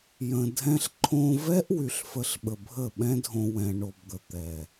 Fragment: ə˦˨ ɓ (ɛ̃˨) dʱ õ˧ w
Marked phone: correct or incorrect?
incorrect: ɛ̃˦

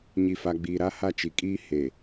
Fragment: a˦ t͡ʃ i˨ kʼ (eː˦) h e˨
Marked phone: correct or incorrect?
incorrect: iː˦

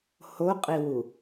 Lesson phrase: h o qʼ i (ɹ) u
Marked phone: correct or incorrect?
incorrect: w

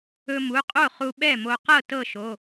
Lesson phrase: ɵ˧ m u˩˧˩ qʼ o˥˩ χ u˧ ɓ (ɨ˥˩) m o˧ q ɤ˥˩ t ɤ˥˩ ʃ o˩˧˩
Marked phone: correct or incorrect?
incorrect: ɛ˥˩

